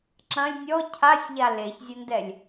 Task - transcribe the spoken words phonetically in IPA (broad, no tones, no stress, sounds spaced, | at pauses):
ǁ ɐ̃ lʲ nʲ ɔ cʰ a sʲ ʎ a l e ç zʲ ɐ n d ɛ lʲ